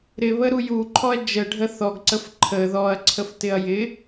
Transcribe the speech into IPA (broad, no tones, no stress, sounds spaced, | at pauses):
ɾ ɪ β ə ɾ u j u ǃʰ ɔ ɐ̯ d͡ʒ ə ɖʱ ə θ ɔ ɡ ǀ ə f ǃʰ ə ð ɔ ɐ̯ ǀʰ ə f t ɪ ɐ̯ j ɪ